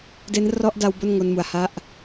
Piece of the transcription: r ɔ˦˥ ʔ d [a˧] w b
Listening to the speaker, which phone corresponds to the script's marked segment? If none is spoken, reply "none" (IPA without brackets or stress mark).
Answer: a˧